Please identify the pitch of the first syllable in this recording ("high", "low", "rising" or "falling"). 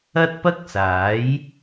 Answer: high